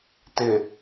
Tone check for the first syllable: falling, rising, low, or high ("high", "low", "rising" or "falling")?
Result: low